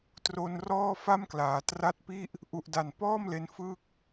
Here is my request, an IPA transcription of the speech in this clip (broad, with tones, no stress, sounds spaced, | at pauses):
t r o˧ n r ɔː˥˩ f a˥˩ m k l aː˩˦ t r a˦˥ t̚ p i˥˩ ʔ | ʔ u˨˩ ʔ d a˨˩ n p ɔː˥˩ m l e˧ n f ɯː˥˩ k̚